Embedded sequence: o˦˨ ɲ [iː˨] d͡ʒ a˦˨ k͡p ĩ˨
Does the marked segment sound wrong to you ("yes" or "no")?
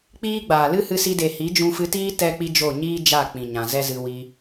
yes